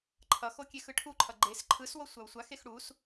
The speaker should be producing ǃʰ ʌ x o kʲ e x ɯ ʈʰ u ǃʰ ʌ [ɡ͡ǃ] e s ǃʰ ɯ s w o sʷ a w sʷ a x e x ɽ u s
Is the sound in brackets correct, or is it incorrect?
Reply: correct